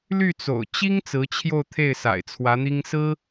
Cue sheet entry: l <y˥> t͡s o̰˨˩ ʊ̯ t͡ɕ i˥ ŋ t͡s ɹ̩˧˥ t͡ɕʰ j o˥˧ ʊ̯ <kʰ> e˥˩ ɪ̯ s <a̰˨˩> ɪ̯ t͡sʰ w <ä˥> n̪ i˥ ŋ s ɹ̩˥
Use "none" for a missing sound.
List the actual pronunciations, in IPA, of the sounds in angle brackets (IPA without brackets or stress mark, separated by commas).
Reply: y˥˩, t̪ʰ, a̰˨˩, ä˧˥